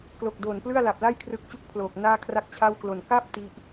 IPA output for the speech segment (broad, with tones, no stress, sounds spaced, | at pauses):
k l o˨˩ k̚ d oː˨˩ n p l ɯ˥˩ a̯ l a˨˩ p̚ l a˥˩ j kʰ r ɯ˦˥ k̚ t͡ɕ u˥˩ k̚ pʰ l oː˨˩ k̚ n aː˥˩ kʰ r a˥˩ k̚ t͡ɕʰ a˥˩ w k l o˨˩ n k a˥˩ p̚ t i˦˥ ʔ